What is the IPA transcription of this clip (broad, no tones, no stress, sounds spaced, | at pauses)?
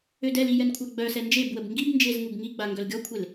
ø d ɛ l i j ɛ n kʷʰ a ɡ͡b œ s ɛ n d͡ʒ e b w ə b ŋ ɡ i b n d͡ʒ e z ŋ u b ŋ i ɡ͡b a ŋ ɡ œ l ɡʲ ɔ kʷʰ e l